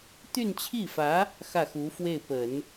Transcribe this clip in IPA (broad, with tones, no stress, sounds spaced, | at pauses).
t̪ y˥˧ n t͡ɕʰ i˥˩ f ä˧˥ | x ä˥˩ x u˧˥ f w e˥˩ ɪ̯ p ə˨˩˦ n